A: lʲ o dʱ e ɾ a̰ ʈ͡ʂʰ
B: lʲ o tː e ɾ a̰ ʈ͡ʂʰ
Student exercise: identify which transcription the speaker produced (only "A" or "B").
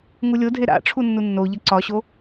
A